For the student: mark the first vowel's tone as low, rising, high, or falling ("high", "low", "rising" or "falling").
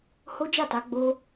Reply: high